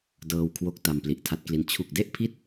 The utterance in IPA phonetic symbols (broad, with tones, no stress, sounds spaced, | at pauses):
d ɤː˧ w kʰ w o˦˥ k̚ t a˧ m p l i˨˩ ʔ tʰ a˦˥ t̚ k l i˦˥ n t͡ɕʰ u˨˩ k̚ d e˥˩ ʔ pʰ i˥˩ t̚